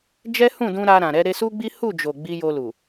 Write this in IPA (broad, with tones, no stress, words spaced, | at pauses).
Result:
d͡ʒɛ˦hũ˦˨dũ˧ ɾa˧ɾã˨ɾɛ˨˦ ɾe˧su˦ ɡ͡bi˦ hu˦˨d͡ʒo˨ ɡ͡bi˧jo˧lu˨